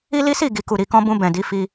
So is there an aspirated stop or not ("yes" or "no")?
no